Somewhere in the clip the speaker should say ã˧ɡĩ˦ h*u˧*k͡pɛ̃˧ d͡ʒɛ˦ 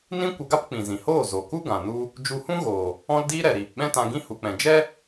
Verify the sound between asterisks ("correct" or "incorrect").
correct